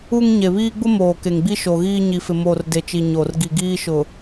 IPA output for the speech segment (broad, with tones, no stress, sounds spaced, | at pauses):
u˦ ŋ ɲ e˨ β iː˦ ɡ͡b ʊ˦ m oː˨ k e˨ ŋ ɡ͡b i˦ ʃ o˨ ɣ iː˦ ɲ i˨ f ɪ˨ m o˦˨ r d e˨ t͡ʃ i˨ ɲ o˨ r ɡ i˨ ɡ iː˦ ʃ ʊ˨